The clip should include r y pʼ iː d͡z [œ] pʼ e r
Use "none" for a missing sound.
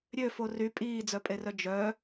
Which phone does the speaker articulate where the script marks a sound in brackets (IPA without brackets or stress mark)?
œ